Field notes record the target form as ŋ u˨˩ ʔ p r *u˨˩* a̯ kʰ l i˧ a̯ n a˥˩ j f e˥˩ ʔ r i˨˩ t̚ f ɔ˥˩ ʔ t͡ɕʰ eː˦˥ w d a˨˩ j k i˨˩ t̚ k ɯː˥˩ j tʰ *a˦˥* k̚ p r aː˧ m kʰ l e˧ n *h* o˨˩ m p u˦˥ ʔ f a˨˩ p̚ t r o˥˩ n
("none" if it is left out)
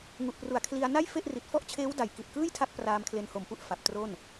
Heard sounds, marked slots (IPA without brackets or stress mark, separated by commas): u˨˩, a˦˥, h